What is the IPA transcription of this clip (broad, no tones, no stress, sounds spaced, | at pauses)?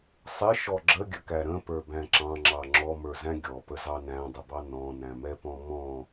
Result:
sˤ ɪ ʃ ɔ ɡ͡ǁ ə ɡʲ ə k æ ɾ ə̃ p ə˞ b æ̃ ǁ ɑ̃ ŋ͡ǁ ɑ ŋ͡ǁ ɔ m ə˞ z æ̃ ɡʲ ɔ p ə z ɑ n æ̃ dˤ ə b ɑ n ɔ̃ n æ̃ m ɛ p ɔ̃ m ɔ̃